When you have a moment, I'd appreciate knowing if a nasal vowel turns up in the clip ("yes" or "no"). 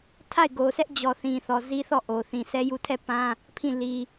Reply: yes